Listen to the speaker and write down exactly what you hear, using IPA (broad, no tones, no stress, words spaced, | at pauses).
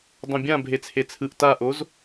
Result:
dˤõbʲã bʱet͡sʰet͡sʰɯʔ taʔoz